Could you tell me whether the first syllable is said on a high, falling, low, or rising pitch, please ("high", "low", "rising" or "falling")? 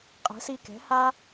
rising